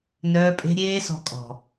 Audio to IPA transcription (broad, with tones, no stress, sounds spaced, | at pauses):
n œː˧ pʼ e̤˧ ɾʲ eː˧ s ɔ̤˧ kʼ ɔ̤˨